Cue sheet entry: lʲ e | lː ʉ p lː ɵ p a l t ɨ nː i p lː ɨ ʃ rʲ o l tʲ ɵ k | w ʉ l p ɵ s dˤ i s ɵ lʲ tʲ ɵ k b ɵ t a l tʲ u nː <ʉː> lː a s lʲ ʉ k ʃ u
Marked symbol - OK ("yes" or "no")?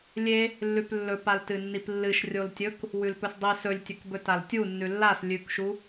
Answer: no